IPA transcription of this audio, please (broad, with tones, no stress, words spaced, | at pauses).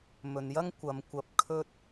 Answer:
mɵ˨njɐ˥ŋ kʷɐ˨˧mkʷɐ˧p̚ kʰɵ˥t̚